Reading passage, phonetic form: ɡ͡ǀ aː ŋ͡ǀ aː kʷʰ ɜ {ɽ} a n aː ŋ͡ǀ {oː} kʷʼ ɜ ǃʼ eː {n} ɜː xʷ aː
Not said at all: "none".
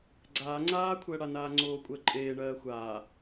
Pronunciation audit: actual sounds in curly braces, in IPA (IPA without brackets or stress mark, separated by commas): ɽ, oː, ɳ